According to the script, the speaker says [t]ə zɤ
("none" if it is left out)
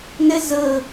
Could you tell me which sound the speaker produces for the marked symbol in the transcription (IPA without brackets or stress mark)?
n